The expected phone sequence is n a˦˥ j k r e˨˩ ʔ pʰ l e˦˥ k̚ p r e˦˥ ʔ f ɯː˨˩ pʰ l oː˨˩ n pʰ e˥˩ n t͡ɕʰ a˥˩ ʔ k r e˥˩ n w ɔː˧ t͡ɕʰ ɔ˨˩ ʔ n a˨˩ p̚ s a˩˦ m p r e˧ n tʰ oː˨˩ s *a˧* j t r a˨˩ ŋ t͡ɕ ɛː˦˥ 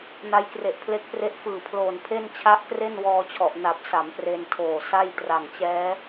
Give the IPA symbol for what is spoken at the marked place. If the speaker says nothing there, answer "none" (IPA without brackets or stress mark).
a˥˩